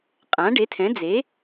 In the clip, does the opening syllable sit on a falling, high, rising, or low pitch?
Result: rising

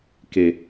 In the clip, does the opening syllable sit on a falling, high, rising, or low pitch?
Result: low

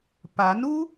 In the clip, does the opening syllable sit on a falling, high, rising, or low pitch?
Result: rising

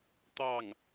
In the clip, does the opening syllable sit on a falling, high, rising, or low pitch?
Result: falling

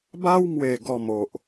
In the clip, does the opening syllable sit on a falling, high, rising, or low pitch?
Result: high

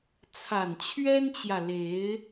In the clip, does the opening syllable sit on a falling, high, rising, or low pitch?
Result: low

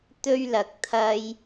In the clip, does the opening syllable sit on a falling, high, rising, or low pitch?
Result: high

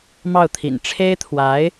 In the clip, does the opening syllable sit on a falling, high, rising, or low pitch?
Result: falling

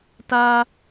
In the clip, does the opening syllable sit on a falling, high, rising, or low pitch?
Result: high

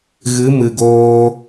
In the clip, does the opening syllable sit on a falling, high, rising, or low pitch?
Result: rising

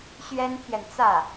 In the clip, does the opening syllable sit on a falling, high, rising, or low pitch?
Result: high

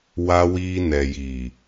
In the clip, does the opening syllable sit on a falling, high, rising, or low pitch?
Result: high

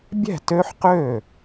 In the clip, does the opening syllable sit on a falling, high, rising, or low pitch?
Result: falling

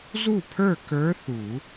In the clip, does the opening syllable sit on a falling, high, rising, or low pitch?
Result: falling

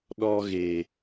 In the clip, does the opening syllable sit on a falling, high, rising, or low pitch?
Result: high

